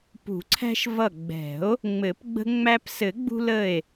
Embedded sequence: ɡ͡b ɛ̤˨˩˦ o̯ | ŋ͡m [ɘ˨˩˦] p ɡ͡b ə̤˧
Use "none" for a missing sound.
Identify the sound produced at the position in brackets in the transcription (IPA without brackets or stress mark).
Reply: ɘ˨˩˦